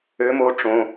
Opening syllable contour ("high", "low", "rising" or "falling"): rising